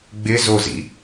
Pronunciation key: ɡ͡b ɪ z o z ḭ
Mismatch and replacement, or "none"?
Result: none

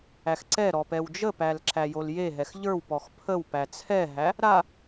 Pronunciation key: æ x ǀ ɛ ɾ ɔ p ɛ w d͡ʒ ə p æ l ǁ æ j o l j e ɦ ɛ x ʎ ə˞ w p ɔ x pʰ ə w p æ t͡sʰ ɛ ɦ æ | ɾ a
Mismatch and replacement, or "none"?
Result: none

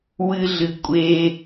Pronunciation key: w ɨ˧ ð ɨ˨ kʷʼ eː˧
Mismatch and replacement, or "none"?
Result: ð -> ɮ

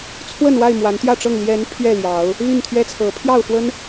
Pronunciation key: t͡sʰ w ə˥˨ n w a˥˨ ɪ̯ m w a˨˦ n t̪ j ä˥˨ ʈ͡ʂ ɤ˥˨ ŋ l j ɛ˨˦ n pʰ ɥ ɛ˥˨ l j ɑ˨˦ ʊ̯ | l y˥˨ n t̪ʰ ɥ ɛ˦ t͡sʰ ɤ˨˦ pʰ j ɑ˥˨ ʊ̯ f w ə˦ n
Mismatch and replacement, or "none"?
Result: none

